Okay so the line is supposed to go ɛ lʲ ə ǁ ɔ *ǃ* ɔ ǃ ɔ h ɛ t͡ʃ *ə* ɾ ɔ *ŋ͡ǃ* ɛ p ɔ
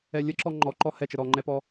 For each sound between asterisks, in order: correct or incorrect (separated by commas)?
incorrect, correct, correct